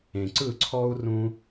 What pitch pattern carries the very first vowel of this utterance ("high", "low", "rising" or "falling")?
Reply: low